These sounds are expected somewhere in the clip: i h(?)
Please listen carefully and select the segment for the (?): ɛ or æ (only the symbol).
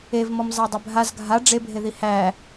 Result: æ